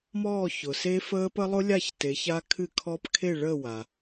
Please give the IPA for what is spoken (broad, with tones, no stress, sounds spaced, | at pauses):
m ɔː˥˨ ç ʊ˩ s e˦˥ f əː˦˥ p ə˦˥ lˠ ʊ˦˥ lʲ a˥˨ ç t e˨˦ ç a˦˥ kʰ ɨ˥˨ kʰ ɔ˦˥ p kʰ e˥˨ ɭ əː˥˨ w a˩